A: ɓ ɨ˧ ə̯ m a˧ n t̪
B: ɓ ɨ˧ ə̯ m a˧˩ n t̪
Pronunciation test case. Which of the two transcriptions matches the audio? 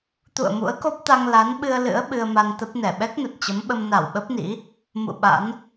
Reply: A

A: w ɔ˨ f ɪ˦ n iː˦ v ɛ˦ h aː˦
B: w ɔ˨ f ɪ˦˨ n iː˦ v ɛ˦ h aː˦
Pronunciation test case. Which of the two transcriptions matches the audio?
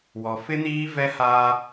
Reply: A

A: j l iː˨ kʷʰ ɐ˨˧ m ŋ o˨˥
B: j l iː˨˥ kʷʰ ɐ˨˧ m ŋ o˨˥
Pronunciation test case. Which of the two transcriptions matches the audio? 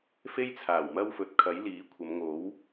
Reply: B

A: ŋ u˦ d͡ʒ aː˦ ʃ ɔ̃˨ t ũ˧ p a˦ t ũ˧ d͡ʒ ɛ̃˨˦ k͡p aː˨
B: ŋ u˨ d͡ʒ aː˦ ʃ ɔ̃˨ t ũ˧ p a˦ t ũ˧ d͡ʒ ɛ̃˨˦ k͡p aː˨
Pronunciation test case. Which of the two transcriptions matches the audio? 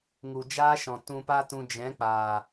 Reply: B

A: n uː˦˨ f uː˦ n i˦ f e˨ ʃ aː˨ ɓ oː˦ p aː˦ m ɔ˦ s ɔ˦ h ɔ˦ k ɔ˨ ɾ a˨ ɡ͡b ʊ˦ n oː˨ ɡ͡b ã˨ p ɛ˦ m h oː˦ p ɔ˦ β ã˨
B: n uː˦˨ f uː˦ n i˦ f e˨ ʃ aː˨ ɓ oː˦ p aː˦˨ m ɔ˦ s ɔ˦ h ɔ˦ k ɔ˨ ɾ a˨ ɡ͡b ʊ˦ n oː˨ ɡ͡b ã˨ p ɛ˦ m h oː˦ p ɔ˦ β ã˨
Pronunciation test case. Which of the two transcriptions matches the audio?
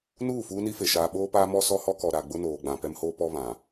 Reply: A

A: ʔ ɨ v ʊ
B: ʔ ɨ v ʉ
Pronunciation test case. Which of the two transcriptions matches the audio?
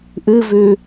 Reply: B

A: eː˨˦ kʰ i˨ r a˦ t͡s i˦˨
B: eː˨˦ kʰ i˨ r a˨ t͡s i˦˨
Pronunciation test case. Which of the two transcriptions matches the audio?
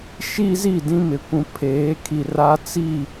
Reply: A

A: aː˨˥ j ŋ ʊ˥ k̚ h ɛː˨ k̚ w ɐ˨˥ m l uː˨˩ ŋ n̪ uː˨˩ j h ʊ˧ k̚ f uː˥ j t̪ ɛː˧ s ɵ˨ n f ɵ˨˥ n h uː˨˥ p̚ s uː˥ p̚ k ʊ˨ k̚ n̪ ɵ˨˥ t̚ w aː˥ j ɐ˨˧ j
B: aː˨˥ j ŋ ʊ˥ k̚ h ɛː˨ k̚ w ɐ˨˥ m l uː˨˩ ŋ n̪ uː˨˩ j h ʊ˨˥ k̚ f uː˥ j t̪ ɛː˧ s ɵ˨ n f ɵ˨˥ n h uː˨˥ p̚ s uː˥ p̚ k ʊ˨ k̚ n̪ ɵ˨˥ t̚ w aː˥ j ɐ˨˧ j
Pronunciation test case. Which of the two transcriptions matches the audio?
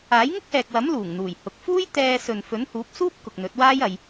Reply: B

